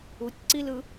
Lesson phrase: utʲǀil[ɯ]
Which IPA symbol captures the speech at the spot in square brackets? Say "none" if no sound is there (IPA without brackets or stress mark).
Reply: ɯ